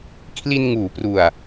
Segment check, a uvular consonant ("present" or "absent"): absent